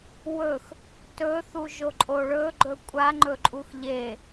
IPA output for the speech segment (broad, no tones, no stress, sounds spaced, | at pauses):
w ɵ x | t ɵ θ u ʒ o ǃʼ o ɭ ɵ ɡ͡ǃ ɵ kʷʼ a ŋ͡ǃ ɵ ǃʼ u x ʎ e